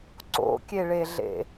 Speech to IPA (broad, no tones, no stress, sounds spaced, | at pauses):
ǀ o̰ kʲ e ɭ e ɮ ḛ